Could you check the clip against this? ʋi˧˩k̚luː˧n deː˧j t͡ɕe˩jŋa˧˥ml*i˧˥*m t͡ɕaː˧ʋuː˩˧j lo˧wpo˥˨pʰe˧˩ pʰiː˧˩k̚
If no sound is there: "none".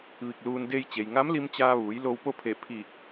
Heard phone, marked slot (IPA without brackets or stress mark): i˧